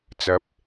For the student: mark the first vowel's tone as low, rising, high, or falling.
rising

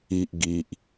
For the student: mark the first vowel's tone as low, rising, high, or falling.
low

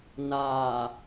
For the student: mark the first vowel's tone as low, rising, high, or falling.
low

